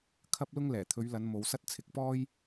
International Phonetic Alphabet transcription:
kʰɐ˥p̚lʊ˥ŋ lɛː˨˩t̪ʰɵ˨˧ɥlɐ˨˧n mo˨˧wsɐ˥t̚ t͡sʰɪ˨˥k̚pɔː˥j

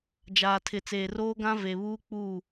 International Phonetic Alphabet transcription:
d͡ʒaː˨tʰɪ˨ t͡seː˨roː˦ɡã˦ ve˨βuː˦ k͡pu˦˨

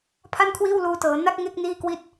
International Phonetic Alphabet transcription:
pʰa˥˩nkʰwiː˥˩wluː˧tɤː˩˦ na˦˥k̚ ŋe˥˩k̚ niː˥˩kwi˥˩t̚

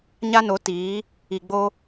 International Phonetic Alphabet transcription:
ɲa˦no˨˦tiː˨˦ | i˨ɡ͡bo˦

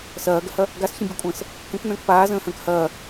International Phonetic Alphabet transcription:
sɐːɡəhɐ | ɡasçə̃bʲukʷʼə̃ːs | kə̃knə̃ːk paːzə̃ːhə̃ːk hɐː

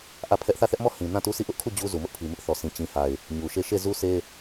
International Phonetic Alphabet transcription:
ʔä˦˨pʰɛ˦ʔ θä˦˨θɛ˦ʔmɔ˦˨hĩ˨ nã˦˨tu˦sʰi˦˨ ʔʊ˦ʔkʰu˦˨ d͡ʑu˦ zu˨mʊ˦ʔpʰi˨ mɪ˦ʔθɔ˨sʰĩ˨ t͡ɕĩ˨ha˨ɪ̯ | ɲu˨ʃe˦˨ ʃe˦˨zu˦sʰe˦

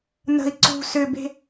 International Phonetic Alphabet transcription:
nə̤i̯ ǀṳ sʏbe̤

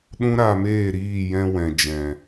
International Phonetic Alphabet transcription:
ɗũ˦ɾa˧meː˦˨ɾiː˦˨ jɛ̃˧wɛ̃˨ d͡ʒɛ̃˨

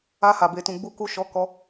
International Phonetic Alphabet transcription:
a˧ha˨ be˨tũ˨ ɡ͡bu˨ku˨ ʃɔ˨˦kɔ˧

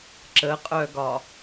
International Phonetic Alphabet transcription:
ǁəqʼœɡɒ

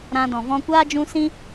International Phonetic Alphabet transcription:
ɾã˧dɔ̃˨ vɔ̃˧kʷaː˦d͡ʒũ˧ sĩ˦

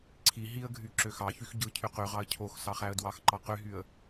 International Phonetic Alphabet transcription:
ǀʰi ɦiə̯ɡʱy ǁøxɑçyx ɟɯ cʰyqyʁɑə̯ cʰox sɑχæə̯dwɑxǃɑ qyɦyə̯

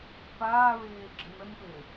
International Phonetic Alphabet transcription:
paːɹeː ɡ͡ǁɨnənpeː

